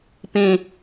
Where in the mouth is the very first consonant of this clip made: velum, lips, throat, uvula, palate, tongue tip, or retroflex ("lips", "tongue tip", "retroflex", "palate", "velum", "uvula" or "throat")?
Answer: lips